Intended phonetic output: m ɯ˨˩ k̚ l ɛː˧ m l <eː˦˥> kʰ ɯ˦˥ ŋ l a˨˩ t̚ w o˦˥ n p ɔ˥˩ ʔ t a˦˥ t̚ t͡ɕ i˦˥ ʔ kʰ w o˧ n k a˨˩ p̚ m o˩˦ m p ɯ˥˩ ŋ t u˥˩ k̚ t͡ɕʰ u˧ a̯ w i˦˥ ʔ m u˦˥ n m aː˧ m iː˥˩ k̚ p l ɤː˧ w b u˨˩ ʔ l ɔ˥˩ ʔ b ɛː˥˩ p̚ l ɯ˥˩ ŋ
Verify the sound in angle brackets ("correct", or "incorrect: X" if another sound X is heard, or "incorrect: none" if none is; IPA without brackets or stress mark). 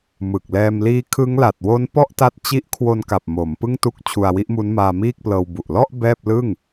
incorrect: iː˦˥